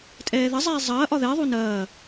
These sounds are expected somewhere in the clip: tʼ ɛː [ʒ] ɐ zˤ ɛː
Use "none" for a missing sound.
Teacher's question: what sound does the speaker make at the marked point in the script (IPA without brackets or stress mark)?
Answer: ð